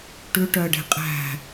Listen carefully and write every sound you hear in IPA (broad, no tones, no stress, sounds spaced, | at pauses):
ʈ ʉ ʈ œ ə̯ ɖ e̤ qʼ æ̤